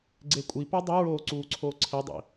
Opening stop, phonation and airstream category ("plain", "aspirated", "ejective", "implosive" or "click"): click